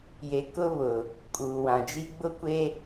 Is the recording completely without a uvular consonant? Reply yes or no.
yes